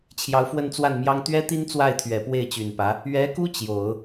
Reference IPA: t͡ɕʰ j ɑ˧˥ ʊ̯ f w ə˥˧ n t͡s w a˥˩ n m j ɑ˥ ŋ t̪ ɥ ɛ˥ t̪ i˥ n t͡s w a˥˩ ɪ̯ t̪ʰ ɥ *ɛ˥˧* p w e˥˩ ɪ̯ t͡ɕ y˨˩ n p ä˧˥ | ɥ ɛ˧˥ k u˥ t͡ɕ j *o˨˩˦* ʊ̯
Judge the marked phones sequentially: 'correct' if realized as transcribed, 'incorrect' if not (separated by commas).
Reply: incorrect, correct